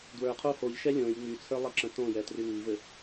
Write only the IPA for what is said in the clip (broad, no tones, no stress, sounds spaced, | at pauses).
d w ə˞ qʰ o h o ʎ ʃ ɛ lʲ õ j ŋ͡m y t͡sʰ ə˞ lˠ ʌ ǁ ə̃ t õ j ɛ t r y ŋ i v ɘ